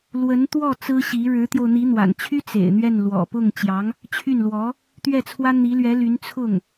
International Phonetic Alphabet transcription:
l w ə˧˥ n t̪ w ɔ˥˩ t͡s ɹ̩˥ ɕ i˧˥ ɻ ɻ̩˧˥ t̪ j o˧ ʊ̯ n̪ i˧˥ n̪ w a̰˨˩ n t͡ɕʰ y˥ t͡s ḛ˨˩ ɪ̯ n̪ ɥ ɛ˥˩ n l w ɔ̰˨˩ p ʊ˥˩ ŋ t͡ɕ j ɑ˧˥ ŋ | t͡ɕʰ y˥˩ n l w ɔ˧˥ | t̪ ɥ ɛ˥˩ t͡sʰ w ä˥ n̪ i˧˥ l ɥ ɛ˧˥ l y˧˥ n t͡sʰ ʊ˥˩ ŋ

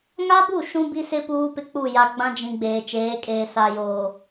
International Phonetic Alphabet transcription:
ŋ a˦ b u˦˨ ʃ ũ˦ b i˦ s ɪ˦ p uː˦ p ɪ˦ k͡p u˦˨ j a˨ ɡ͡b ã˦ d͡ʒ ĩ˨ ɡ͡b eː˨ t͡ʃ eː˨˦ kʼ eː˨ s a˨ j oː˨

